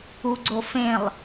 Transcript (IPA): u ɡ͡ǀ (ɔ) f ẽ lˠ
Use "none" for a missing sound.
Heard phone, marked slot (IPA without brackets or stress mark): o